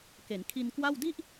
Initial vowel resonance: oral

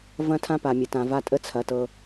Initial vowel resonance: nasal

